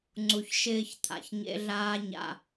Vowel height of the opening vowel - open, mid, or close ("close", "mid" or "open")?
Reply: close